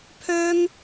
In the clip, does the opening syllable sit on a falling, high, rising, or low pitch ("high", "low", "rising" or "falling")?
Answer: high